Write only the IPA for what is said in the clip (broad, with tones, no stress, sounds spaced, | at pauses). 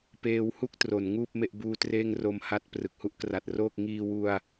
p eː˦˥ w h u˥˩ k̚ t r o˩˦ n ŋ uː˥˩ p̚ m e˥˩ ʔ b uː˦˥ t r eː˥˩ ŋ r o˧ m h a˦˥ t̚ p r ɯ˨˩ k̚ h u˥˩ ʔ k r a˨˩ t̚ r oː˥˩ k̚ ŋ iː˧ w u˧ a̯